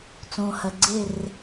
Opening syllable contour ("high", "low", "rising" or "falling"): low